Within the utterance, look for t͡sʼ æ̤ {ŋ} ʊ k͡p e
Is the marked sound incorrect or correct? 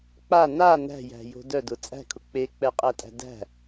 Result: incorrect